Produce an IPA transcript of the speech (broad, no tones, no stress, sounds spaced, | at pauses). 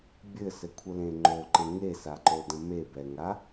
bʲ ɘ s ɘ kʷʰ ə l ẽ ŋ͡ǃ o ǃ ə̃ ŋ e s a ǃ o d ə̃ m e b ɛ ŋ a